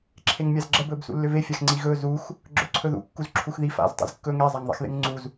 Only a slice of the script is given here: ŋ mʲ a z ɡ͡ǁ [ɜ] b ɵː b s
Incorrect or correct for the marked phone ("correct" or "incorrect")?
correct